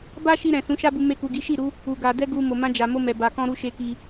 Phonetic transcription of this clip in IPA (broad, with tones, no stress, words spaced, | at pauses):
ba˦ʃi˧ ɾɛ̃˨sũ˨˦ʃa˦bu˧ me˧ku˨ɡi˨˦ ʃi˦˨ɾu˨˦ | u˨ ɡa˧ dɛ˦ɡu˧ mo˨mã˧d͡ʒa˨mo˧ mɛ˨ba˨kɔ̃˧ɾu˧ ʃe˧ki˧